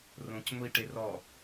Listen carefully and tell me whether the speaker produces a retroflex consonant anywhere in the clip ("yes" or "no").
yes